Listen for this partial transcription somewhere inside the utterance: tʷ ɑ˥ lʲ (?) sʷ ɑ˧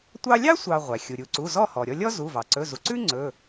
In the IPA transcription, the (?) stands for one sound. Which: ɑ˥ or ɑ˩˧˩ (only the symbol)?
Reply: ɑ˥